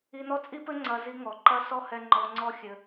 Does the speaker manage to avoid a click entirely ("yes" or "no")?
no